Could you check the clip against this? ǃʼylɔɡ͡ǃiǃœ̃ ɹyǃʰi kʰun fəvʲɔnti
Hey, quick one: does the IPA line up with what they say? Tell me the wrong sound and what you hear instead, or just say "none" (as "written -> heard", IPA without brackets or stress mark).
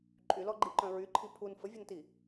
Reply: kʰ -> pʰ